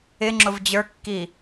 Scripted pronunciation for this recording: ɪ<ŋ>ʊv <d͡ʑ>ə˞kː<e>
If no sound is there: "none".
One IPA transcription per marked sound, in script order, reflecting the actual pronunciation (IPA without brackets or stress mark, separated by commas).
ŋ͡ǁ, d͡ʑ, i